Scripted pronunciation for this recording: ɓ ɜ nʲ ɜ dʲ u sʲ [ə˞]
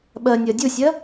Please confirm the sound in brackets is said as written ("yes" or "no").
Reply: no